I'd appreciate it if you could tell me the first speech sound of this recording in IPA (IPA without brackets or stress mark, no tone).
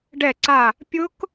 ɖ